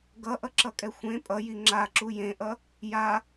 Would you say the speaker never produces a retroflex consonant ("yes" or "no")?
yes